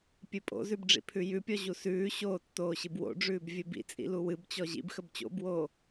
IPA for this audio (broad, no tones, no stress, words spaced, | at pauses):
pʲɨpʼo̰zʉb ɖ͡ʐḭpʰʉjʉpʲɔ ʑusʉːɕoː tːoːɕɨbwo̰ɖ͡ʐʉːb vʲɨbḭt͡sʼḭ luwɨbt͡ɕɔ ʑḭbxəb t͡ɕo̰bwoː